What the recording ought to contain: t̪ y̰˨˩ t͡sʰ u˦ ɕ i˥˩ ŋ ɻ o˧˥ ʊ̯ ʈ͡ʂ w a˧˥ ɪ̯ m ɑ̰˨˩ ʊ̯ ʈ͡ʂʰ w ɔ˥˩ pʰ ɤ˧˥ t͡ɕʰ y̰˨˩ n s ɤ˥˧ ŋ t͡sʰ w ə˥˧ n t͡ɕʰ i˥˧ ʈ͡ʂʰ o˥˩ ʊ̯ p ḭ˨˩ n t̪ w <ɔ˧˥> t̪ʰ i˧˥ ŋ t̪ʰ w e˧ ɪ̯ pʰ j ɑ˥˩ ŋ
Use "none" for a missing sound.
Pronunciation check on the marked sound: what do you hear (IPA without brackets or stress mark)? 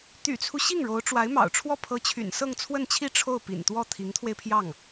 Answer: ɔ˥˩